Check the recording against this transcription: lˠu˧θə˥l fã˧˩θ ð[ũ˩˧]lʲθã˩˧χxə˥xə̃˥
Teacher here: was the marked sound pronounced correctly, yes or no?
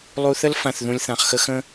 no